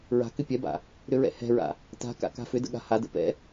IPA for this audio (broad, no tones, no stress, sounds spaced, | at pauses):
ɹ a̤ k ʏ pʲ ɛ b a̰ | ɾ ʏ ɹ ɛ̰ h ɛ̤ ɹ a̰ | t a̤ k a̰ k a̤ f ʏ d ə̰ ɠ a̤ h a d ə̰ p ɛ̰